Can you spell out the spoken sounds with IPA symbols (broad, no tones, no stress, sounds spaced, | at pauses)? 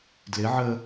d l ɪ ʕ ə